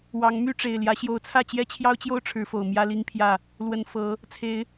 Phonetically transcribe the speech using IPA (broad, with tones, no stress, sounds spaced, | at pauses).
w ɑ˨˦ ŋ m y˥˨ ʈ͡ʂ e˨˩ ɪ̯ l j ä˨˦ ɕ j o˨˦ ʊ̯ t͡sʰ ä˥˨ t͡ɕ j ɛ˦ t͡ɕʰ j ɑ˦ ʊ̯ t͡ɕ j o˦ ʊ̯ ʈ͡ʂʰ ɻ̩˨˦ f o˨˩ ʊ̯ m j ä˦ l i˦ ŋ pʰ j ä˥˨ | l w ə˨˩ n f ɤ˨˦ | t͡sʰ e˨˦ ɪ̯